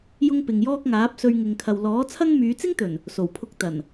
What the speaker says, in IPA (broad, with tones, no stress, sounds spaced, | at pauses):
j ʊ˥ ŋ p ɪ˨ ŋ j ɔː˥ k̚ ŋ aː˨˥ p̚ s ɵ˧ ɥ ŋ ɪ˨ ŋ kʰ ɐ˨ w l ɔː˨˥ t͡sʰ ɐ˥ ŋ m yː˨˧ t͡s ɪ˥ ŋ t̪ ɵ˨˩ n | s o˨˩ w pʰ ʊ˧ k̚ t̪ ɐ˨˩ n